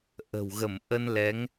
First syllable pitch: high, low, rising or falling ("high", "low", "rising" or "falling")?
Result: low